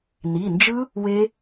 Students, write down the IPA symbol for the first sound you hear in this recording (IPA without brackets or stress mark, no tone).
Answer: n